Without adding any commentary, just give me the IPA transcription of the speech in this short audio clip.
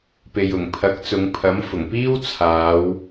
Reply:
p e˨ j ʊ˨˩ ŋ pʰ ɐ˨˥ k̚ t͡s ʊ˨˧ ŋ pʰ ɐ˨˥ m f ʊ˨˩ ŋ p iː˥ w t͡sʰ aː˨˧ w

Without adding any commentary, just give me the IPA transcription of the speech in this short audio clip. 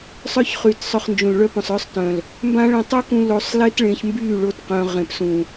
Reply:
sˤ œ˦ ç χ yː˨ t sˤ œ˧ χ n d͡ʒ ũ˨ l ɭ œ˦ p œ̃˨ sˤ œ˦ sˤ t œ̃˨ l | m b ã˦ ɭ ɛ̃˧ tˤ u˦ k ũ˧ l o˧ sˤ l e˦ t ɭ ẽ˧ ç m b yː˦˨ ɭ o˦ t q œ̃˧ ʁ ẽ˨ p s ũ˨

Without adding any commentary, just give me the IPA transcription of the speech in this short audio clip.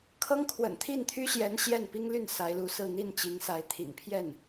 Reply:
kʰ ɤ˥ ŋ kʰ w ə̰˨˩ n t̪ʰ i˥˩ n t̪ʰ y˥ ɕ j ɛ˧˥ n ɕ j ɛ˥˩ n p i˥ ŋ l y˥˩ n s a˧˥ ɪ̯ l u˧˥ s ɹ̩˥˧ n̪ i˥˩ n t͡ɕ i˧˥ ŋ s a˧˥ ɪ̯ t̪ʰ ḭ˨˩ ŋ pʰ j ɛ˥˩ n

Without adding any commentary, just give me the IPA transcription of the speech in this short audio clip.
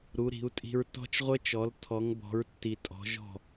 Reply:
ɾ u˨˦ ɾ i̤˨˦ u̯ tʼ i̤˦ ɹ t ɔ̤˦ t͡ʃ ʁʷ ə˦ t͡ʃ ɔ˨˦ l tʰ ɔ˨˦ ŋ b ɔ̤˨˦ ɹ tː i˨ tʼ ɔ̤˨˦ ʒ ɔ̤˦˨

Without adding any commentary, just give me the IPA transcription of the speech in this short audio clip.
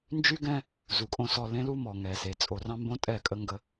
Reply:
n d͡ʒ y˦ ɡ ɛ̃˦ | z u˨ kʼ õ˦˨ s ɔ˦˨ l ẽ˦ l u˦ m ɔ˨ ŋ ɛ˨ s e˨ t͡sʼ o˨ r ɑ̃˦ m b õ˦ tʼ ɛ˦˨ kʼ ə˦ ŋ ɡ ə˦

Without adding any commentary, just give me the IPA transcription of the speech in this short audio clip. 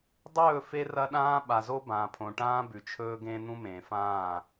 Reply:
dˤ ɵː˦˨ f e˦ r ɐ˦ ɗ ãː˦ ɓ a˨ z o˦ b ãː˨ pʰ õ˨ ʈ ãː˦ b ʉ˨ t͡ʃʰ ɵː˦ ɡ ẽː˦ n̪ ũ˦ m ẽː˨ f ãː˦˨

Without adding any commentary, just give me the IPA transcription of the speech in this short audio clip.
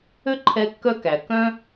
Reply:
ø˥ ǃʰ ɛ˦ kː œ˥ k æ˩ k œ̃˦

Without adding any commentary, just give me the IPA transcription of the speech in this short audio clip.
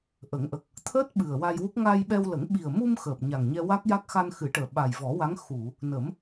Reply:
ʔ ə˨˩˦ ŋ ʔ ə˨˩ k̚ | t̪ʰ əː˦˥ t̚ ɓ ɨ˨˩ ə̯ w a˧ j w u˦˥ k̚ ŋ a˧ j ɓ ɛ˧ w l ə˨˩˦ ŋ ɓ i˨˩ ə̯ m u˧ m x əː˨˩ p̚ ɲ a˨˩ ŋ ɲ ɛ˧ w a˦˥ k̚ j a˦˥ k̚ x a˧ n x ɨ˨˩˦ ʈ əː˨˩ ɓ a˨˩ j v ɔ˨˩˦ w a˧˥ ŋ x u˨˩˨ | n ə˨˩˦ m

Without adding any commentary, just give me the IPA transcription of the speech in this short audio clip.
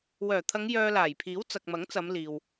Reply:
w œː˨˩ t̪ʰ ɐ˨˧ ŋ j œː˧ l aː˨˩ j pʰ iː˨˥ w t͡s ɐ˨ k̚ m ɐ˨˥ ŋ t͡s ɐ˨˧ m l iː˨ w

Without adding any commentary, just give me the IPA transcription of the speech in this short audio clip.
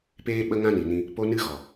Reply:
p eː˦ ɓ ə˦ ŋ ã˦ n i˨ n ĩ˧ | p o˦ n ɨ˦ ɣ ɔ˨

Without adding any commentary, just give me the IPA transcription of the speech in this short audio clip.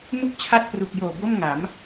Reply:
m u˥˩ k̚ t͡ɕʰ a˥˩ t̚ p r u˨˩ k̚ j oː˨˩ b o˥˩ m ŋ a˩˦ m

